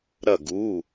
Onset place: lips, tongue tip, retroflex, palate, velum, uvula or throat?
tongue tip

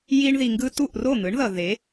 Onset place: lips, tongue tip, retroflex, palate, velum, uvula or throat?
palate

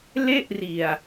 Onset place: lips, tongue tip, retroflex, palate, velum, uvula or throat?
tongue tip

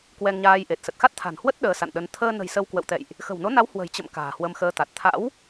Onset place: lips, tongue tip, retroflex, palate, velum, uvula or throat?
velum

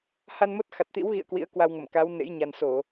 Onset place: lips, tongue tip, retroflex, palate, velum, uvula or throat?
throat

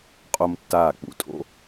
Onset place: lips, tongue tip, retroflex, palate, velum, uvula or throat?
uvula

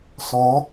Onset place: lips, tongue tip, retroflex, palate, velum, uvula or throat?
tongue tip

